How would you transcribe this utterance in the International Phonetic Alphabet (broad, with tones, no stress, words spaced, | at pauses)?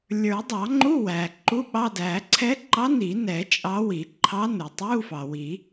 lʲə˞˨˩˦dˤɑ˨˩˦ ŋ͡ǃu˧˥˧ wæ˩ ǃu˧˥˧ɓɑ˧˥˧dæ˨˩˦ ǀʰɛ˧˥ǃɑ˧˥ ni˨˩˦nɛ˨˩˦ t͡ʃʼɑ˧˥wi˨˩˦ ǃʰɑ˧˥nu˩tˤu˧˥˧ fɑ˩ wi˨˩˦